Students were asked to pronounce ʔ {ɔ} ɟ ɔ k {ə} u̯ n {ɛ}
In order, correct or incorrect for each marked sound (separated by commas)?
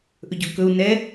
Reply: incorrect, incorrect, correct